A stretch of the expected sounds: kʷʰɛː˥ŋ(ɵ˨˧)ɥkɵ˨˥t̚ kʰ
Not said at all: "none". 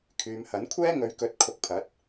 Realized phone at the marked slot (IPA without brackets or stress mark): ɵ˨˧